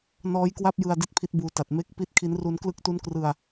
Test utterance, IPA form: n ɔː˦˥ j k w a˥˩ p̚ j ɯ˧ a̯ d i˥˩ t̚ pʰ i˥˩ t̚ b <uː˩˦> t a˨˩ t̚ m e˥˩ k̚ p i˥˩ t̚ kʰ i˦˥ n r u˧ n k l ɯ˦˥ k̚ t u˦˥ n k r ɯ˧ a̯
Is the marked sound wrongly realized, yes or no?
yes